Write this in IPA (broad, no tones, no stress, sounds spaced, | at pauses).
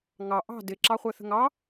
ŋ ɑ ʔ ɑ̤ d ɪ ǁ ɑ χʷ ɜ θ ə̤ ŋ ɑ